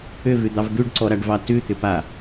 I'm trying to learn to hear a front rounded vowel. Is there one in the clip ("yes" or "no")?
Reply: yes